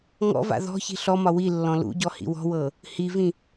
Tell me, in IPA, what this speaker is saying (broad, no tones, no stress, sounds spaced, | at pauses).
ŋ ɔ̰ v a̰ ð ɔ̤ ç i̤ ɬ ɔ m ɒ w i lː ɔ̃ l ṵ ɟ ɔ h ḭ w ɔ̤ w ɤ | h i v ĩ